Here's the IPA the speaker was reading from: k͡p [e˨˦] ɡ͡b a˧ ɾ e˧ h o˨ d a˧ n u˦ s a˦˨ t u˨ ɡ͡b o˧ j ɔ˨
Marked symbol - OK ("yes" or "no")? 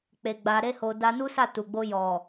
no